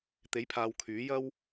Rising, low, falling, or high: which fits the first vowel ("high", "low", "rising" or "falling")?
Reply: rising